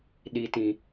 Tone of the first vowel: low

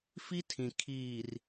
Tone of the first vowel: high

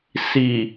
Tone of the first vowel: low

